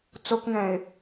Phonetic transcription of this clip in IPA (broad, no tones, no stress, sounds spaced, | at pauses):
t͡s o k ŋ ɛ̃ ɪ̯